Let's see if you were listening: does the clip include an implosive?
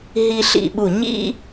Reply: yes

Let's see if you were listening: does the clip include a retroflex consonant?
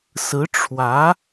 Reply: yes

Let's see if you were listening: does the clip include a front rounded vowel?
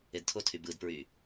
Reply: yes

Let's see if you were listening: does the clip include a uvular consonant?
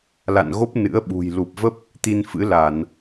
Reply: no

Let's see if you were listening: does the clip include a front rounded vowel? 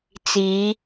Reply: no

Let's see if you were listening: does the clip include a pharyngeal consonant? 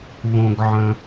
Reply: yes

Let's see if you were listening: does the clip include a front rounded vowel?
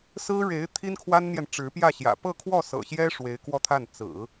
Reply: no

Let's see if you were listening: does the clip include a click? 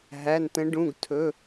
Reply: no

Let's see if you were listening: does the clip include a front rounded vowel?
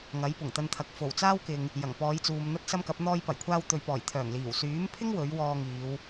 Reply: yes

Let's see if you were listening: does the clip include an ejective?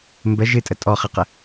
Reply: yes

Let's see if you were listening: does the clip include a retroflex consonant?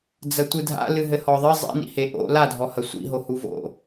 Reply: no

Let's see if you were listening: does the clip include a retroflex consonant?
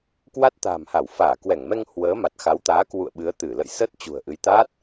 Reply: no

